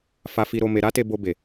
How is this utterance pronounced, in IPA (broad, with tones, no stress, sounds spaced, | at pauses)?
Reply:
f a˧ f i˧ ɾ o˧ m e˧ ɾ a˦ t e˧ b o˧ b e˨